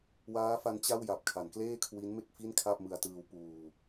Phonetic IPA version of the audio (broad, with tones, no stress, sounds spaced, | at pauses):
w aː˦˥ f a˦˥ n t͡ɕ a˥˩ w j a˨˩ p̚ kʰ a˩˦ n k l eː˥˩ kʰ w i˦˥ n m e˥˩ k̚ f i˥˩ n kʰ a˥˩ p̚ m ɯ˧ a̯ t ɯː˧ w p uː˧